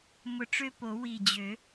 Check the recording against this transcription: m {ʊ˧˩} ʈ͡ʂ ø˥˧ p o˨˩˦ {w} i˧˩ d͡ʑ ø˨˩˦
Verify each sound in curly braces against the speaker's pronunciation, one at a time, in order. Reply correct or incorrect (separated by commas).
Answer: correct, correct